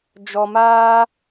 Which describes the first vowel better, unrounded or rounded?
rounded